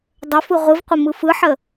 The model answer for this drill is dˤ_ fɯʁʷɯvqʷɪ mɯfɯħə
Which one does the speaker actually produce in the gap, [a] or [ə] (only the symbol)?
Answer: ə